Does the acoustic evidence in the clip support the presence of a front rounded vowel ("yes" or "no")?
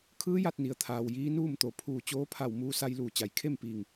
no